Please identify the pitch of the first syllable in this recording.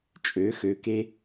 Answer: rising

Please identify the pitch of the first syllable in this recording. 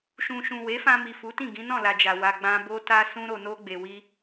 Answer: low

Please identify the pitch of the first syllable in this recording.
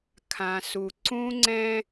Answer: low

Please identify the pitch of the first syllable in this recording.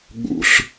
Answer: low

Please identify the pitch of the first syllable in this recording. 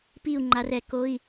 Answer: falling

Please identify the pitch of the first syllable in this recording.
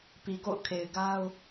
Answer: low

